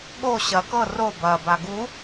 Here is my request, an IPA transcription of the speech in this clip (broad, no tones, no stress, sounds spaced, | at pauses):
ɠ o ɕ ɐ k ɤ r o b ɐ b a ɡ u